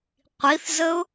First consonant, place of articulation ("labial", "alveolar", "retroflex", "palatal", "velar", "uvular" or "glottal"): uvular